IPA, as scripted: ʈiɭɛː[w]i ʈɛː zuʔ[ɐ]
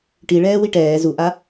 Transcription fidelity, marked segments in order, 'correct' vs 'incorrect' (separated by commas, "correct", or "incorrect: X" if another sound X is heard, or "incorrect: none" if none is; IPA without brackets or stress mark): correct, incorrect: a